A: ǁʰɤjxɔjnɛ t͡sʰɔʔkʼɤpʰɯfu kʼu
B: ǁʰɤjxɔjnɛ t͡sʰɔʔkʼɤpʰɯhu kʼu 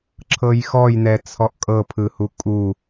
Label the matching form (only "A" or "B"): B